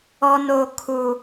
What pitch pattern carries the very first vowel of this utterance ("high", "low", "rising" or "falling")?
low